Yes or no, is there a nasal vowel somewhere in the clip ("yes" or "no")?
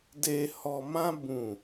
yes